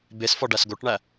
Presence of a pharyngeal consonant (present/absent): absent